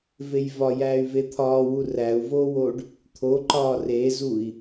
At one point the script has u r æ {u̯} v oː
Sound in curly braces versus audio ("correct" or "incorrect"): correct